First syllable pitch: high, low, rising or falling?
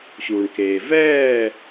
low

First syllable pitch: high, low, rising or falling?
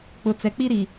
low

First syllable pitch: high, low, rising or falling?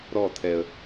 falling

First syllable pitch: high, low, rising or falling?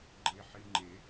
low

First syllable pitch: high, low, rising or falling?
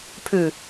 low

